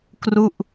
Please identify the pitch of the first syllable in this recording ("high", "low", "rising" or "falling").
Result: falling